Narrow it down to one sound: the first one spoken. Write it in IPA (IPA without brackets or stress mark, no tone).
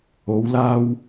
o